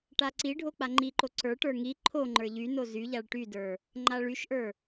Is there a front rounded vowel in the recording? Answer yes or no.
yes